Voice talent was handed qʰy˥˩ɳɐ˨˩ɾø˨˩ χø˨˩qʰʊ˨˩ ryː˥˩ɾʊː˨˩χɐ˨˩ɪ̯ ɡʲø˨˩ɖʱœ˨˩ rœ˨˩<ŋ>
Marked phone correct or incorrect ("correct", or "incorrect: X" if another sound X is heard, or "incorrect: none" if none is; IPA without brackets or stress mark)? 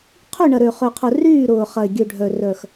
incorrect: x